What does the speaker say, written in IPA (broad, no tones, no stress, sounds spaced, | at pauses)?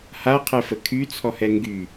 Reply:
h a qʰ ɛ f ə kʰ y t͡sʰ ɔ h ɛ ŋ ɡ y